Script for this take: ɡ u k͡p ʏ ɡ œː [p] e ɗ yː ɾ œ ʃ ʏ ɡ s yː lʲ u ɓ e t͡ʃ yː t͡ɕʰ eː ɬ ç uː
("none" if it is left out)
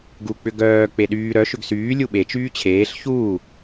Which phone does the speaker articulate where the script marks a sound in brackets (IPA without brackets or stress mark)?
k͡p